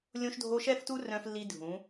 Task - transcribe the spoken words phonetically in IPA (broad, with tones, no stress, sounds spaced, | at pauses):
lʲ õ˦ ʃ dʱ o˦ ʃ ɛ˦ f t u˦ r œ̃˦ f lː i˦ dʱ ũ˨˦